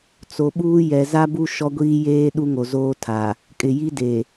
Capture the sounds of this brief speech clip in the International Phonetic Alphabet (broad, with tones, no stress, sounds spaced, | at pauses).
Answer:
t͡s o˨ ɓ uː˦ j ɛ˨ z a˦ b u˦ ʃ ɔ˦ ɡʷ iː˦ j eː˦ ɗ u˦ ŋ o˨ z oː˦ tʰ a˨ | kʼ ɪ˨ j i˦ d e˨